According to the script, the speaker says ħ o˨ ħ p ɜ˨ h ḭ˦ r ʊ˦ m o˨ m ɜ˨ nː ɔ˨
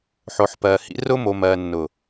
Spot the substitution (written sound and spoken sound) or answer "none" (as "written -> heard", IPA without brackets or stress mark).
ɔ˨ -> ʊ˨